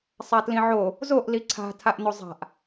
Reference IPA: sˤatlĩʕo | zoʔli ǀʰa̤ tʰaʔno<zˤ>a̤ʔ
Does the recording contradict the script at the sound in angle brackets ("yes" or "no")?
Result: no